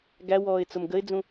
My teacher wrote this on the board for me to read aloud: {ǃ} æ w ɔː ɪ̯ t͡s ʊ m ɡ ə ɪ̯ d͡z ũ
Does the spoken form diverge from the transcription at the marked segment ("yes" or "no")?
yes